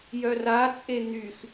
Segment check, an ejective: present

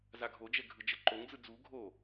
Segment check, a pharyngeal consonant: absent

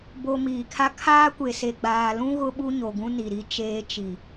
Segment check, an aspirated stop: present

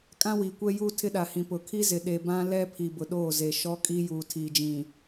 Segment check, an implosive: present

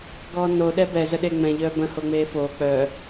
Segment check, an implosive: present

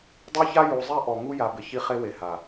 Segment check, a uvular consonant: present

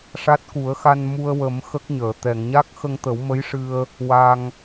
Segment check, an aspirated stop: absent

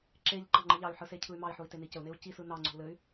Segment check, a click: present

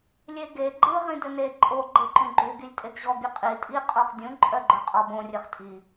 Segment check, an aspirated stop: absent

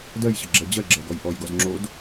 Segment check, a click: present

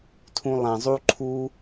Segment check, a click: present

